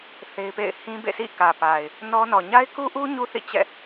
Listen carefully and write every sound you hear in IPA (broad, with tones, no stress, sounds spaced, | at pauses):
θ e˦ ɪ̯ p ḛ˦˨ ɪ̯ h ĩ˦ b ḛ˦˨ s ḭ˦˨ k ä˨ p a˨ ɪ̯ | n ɔ˦ n ɔ˨ ɲ a˦ ɪ̯ k u˦ ʔ u˦ ɲ u˦ θ ḭ˦˨ t͡ɕ ɛ̰˦˨